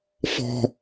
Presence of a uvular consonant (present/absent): absent